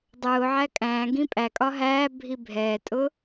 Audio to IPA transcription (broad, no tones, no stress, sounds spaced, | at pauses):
dˤ ʊː ʕ æ kʼ æ̃ː ɡ ĩ pʼ æ kʼ ɒ ɦ æː bʱ i bʱ ɛː tʼ ʊ